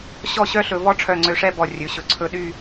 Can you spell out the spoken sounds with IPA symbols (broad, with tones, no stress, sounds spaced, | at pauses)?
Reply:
ɕ ɔ˥˧ ɕ œ˥ ɬ ɵ˩˧ v ɔ˥ ʈ͡ʂʰ œ˧˩ ŋ͡ǀ ø˧ ʂ ɛ˥˧ b ɔ˧˩ rʲ ɵ˩˧ ɕ ɵ˩˧ ǀʰ ɵ˥˧ ɗ y˥˧